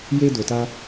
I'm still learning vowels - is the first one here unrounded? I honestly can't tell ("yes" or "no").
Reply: yes